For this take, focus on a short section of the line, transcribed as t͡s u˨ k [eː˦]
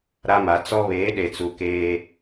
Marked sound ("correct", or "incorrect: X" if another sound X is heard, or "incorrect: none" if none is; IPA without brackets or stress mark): correct